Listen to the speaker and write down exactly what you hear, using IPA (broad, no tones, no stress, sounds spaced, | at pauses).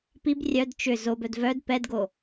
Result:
p i b rʲ œ d t͡ʃ ʏ z o b œ d v œ d p ɛ d ɡ o